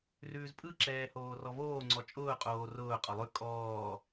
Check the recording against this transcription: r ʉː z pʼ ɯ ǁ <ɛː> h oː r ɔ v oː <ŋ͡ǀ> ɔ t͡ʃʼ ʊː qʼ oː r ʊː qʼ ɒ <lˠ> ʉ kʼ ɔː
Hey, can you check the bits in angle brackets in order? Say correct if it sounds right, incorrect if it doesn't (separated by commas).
correct, correct, correct